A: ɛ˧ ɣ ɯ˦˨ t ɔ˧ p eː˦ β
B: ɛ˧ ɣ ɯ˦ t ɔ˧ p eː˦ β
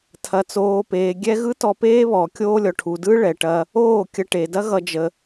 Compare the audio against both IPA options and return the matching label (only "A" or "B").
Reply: B